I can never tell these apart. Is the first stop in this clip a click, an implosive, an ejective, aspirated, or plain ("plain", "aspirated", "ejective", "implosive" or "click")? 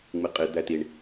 ejective